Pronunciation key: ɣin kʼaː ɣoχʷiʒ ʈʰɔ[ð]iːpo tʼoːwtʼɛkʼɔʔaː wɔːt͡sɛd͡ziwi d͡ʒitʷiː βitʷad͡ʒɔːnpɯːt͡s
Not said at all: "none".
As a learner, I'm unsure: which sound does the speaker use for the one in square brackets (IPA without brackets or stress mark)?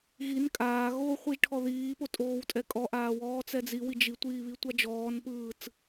ð